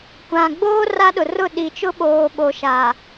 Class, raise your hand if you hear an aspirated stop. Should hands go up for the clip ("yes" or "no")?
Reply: no